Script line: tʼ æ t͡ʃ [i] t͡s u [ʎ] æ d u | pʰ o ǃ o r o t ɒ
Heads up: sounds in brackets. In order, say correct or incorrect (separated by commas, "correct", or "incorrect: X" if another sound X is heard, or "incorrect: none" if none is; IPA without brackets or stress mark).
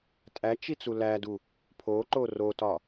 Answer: correct, incorrect: l